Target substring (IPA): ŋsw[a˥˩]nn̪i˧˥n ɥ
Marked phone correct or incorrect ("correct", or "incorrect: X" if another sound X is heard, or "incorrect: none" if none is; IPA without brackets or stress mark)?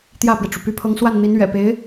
correct